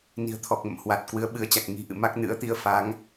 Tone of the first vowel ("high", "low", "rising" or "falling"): low